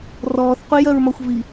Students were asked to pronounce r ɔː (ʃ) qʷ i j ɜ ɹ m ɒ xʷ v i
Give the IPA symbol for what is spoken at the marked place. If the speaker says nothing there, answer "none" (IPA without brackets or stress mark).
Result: θ